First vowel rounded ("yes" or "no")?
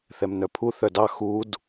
no